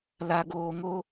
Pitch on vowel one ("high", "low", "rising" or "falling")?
low